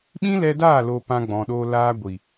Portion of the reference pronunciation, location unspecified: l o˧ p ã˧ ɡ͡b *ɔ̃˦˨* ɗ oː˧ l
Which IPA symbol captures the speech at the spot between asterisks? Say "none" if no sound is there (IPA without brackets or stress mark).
ɔ̃˨